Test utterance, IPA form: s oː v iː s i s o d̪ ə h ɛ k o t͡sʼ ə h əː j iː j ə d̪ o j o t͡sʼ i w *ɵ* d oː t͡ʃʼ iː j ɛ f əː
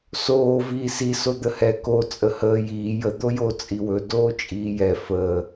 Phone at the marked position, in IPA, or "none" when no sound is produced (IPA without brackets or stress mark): ɵ